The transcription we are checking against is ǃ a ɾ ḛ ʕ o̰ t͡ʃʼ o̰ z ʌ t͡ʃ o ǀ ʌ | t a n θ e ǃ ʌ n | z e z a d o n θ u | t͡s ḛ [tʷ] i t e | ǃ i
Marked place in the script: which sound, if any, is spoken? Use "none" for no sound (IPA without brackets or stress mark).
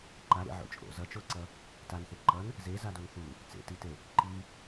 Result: t